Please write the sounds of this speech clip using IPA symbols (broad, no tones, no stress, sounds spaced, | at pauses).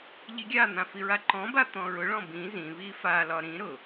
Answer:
ʎ i ɡʲ a n̪ ã f i ɹ a ǃ ɔ̃ b a t̪ ɔ̃ ɹ ʊ ɭ ɔ̃ b ĩ z ĩ β i f a l ɒ ɾ ĩ ɾ ʊ